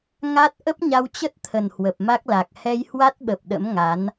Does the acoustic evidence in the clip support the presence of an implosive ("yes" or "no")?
yes